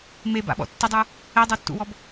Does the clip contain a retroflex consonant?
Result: no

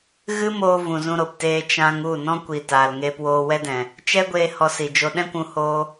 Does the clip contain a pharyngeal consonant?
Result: no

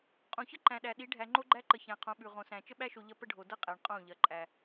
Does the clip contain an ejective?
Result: yes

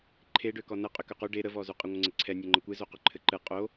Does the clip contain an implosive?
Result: no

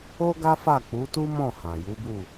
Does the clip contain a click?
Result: no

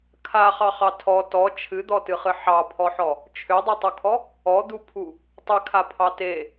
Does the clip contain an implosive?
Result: no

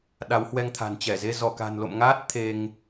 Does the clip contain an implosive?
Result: yes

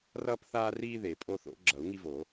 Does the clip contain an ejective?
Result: yes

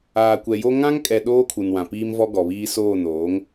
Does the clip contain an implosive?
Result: yes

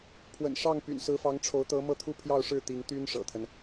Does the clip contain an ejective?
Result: no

